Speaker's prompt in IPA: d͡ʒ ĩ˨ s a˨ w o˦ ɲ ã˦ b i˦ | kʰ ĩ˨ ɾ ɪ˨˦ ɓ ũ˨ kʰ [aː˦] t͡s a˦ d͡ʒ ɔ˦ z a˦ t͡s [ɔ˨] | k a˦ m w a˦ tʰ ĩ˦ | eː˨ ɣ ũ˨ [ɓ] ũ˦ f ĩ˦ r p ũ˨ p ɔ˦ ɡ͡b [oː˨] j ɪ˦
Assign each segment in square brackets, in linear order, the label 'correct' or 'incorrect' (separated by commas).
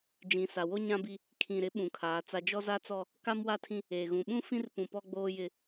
incorrect, incorrect, correct, incorrect